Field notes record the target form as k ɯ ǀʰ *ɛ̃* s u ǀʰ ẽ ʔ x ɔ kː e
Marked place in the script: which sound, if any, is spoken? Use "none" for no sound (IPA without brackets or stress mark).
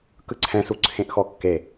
ɛ̃